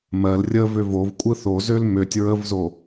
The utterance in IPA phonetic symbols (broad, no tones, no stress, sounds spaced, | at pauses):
m ɜ l rʲ ə v ø v o v kʷʼ ɯ θ o z ø l m ø tʲ ɹ ə v z o